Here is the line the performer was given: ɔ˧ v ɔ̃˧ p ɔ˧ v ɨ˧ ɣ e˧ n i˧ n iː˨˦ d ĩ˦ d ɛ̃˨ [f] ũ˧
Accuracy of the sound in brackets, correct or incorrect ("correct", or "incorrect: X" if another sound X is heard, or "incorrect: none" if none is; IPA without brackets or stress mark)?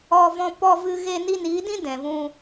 incorrect: v